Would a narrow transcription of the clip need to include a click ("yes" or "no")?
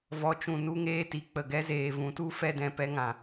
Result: no